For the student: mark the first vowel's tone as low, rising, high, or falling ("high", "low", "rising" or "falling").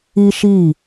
high